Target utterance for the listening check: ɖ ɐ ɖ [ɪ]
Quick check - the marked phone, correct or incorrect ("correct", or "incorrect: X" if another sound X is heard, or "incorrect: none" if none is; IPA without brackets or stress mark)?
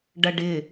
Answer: correct